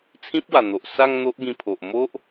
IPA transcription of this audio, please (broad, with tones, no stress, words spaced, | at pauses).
t͡sʰĩ˦p̚wa˨˩n̪o˨ʔsa˥˧ŋ n̪o˦ʔɡĩ˧pʰo˨ʔ mo˦ʔ